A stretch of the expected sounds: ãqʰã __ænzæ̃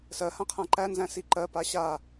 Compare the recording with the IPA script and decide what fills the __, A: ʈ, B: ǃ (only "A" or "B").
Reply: B